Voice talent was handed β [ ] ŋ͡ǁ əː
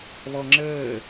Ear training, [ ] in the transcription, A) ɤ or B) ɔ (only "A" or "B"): B